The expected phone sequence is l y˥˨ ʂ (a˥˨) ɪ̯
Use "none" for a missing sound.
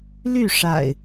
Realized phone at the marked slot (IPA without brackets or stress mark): a̰˨˩